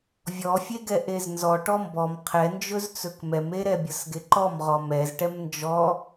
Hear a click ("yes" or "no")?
yes